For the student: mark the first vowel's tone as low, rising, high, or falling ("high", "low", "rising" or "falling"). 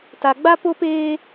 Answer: low